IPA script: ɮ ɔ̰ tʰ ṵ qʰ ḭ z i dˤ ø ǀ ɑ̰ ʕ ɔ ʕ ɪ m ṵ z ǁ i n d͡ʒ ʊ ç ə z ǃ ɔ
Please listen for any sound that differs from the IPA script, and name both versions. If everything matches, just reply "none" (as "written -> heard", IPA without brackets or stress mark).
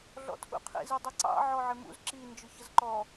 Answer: ø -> ɛ